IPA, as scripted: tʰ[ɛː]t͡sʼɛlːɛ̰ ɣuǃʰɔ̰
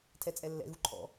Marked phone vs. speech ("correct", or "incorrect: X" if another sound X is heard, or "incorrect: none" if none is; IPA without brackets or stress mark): incorrect: ɛ